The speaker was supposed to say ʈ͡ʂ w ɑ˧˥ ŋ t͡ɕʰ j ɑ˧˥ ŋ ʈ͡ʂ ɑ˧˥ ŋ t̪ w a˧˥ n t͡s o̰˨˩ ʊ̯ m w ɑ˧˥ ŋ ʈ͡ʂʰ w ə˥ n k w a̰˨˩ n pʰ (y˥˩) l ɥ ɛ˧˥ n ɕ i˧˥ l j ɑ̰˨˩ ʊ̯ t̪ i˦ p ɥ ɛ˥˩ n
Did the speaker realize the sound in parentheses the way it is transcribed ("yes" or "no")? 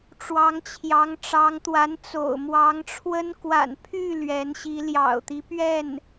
yes